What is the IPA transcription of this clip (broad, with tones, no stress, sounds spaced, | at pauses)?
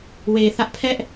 w e˨ θ ä˦ ʔ pʰ ɛ˦ ʔ